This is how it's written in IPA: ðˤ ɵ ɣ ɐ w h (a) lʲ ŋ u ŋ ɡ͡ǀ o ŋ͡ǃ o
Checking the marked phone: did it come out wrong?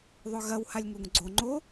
no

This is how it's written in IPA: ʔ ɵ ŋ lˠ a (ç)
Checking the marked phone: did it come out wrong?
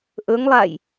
yes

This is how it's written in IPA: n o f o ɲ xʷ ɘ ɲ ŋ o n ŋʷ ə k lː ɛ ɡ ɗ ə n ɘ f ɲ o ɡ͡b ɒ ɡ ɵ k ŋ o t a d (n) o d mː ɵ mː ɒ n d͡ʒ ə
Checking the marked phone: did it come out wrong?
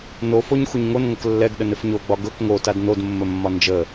no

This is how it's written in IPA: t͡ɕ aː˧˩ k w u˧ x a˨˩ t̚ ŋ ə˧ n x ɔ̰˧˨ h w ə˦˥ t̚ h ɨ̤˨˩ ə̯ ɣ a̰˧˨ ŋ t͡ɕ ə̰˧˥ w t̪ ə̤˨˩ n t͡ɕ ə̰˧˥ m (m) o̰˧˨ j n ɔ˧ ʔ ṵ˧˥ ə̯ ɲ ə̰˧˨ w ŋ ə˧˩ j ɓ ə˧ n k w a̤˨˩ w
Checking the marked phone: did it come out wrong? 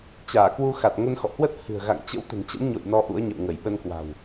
yes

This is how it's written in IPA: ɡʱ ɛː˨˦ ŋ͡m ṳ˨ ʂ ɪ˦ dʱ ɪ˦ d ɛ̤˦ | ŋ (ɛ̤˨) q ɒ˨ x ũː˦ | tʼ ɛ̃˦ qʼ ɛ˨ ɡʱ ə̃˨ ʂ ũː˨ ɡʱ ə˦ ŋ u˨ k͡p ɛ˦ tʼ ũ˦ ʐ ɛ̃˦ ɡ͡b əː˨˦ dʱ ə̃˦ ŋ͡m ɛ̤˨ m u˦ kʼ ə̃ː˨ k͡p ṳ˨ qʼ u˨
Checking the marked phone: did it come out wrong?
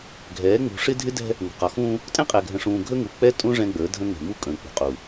yes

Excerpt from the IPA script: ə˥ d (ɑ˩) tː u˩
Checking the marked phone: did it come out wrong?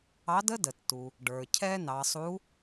yes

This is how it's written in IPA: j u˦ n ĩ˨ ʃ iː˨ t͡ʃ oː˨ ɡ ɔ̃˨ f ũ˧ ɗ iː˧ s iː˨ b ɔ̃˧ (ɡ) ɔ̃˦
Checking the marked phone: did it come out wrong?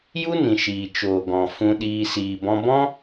yes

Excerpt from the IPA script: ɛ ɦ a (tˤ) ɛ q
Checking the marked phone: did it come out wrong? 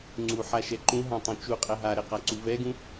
yes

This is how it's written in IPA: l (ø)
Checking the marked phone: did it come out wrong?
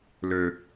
no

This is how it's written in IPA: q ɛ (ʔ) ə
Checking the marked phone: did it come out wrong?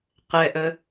no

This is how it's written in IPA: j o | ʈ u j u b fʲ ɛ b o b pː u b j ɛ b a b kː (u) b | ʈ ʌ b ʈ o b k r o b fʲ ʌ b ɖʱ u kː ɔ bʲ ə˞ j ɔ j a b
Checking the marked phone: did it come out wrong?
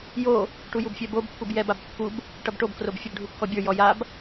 no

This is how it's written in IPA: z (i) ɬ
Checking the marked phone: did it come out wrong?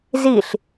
no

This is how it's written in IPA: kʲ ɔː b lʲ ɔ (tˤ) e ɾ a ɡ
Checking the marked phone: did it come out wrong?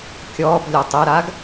no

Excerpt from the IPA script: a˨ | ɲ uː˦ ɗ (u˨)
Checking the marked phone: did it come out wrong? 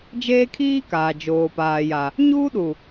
no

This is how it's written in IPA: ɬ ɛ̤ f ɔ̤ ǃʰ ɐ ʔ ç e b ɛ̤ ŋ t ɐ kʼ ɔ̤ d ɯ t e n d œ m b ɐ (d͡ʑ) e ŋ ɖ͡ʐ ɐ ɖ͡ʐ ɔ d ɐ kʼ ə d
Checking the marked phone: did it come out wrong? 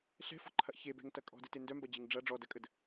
no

